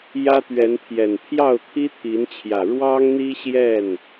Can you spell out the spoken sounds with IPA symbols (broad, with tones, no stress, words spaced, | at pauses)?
jä˦t̪ɥɛ˨˦npʰjɛ˨˩n pʰjɑ˥˨ʊ̯t̪ʰi˦t̪ʰi˨˦nt͡ɕʰjä˨˩ ɻwɑ˦ŋn̪i˦ɕjɛ˥˨n